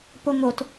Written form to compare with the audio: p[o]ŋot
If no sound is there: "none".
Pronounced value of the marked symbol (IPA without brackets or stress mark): o